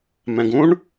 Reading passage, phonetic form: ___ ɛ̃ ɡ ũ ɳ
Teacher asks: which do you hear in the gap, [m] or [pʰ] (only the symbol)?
m